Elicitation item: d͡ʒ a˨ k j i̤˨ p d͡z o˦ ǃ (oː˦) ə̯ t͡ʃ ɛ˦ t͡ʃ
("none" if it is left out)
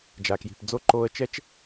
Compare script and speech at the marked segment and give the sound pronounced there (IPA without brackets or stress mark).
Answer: oː˦